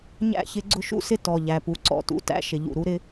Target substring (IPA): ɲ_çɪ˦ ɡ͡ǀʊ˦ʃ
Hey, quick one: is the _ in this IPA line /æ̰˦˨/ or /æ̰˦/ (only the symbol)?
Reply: æ̰˦˨